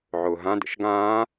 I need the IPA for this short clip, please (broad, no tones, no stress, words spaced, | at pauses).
ʕʊːɦã də̰ʃɡãː